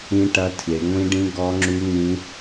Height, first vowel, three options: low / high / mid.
high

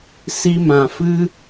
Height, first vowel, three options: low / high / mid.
high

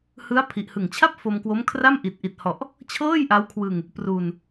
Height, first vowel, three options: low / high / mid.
high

